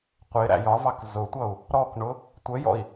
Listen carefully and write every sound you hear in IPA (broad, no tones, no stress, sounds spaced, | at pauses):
qʷ ɪ ɾ æ̰ j ɒ v ɑ k z ʊ tʷ ʌ u̯ | ɾ ɔ k ɳ ʊ | tʷ ə j ɔ̰ i̯